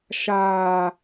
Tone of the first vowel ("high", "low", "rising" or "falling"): low